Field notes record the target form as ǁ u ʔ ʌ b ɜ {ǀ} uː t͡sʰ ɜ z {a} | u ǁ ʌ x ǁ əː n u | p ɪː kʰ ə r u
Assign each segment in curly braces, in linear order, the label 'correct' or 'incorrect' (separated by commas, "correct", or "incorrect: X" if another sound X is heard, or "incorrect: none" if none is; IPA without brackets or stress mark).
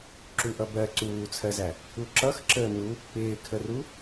correct, incorrect: æ